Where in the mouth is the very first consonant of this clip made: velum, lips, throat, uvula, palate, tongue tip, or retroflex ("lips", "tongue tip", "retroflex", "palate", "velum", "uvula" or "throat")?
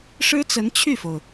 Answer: retroflex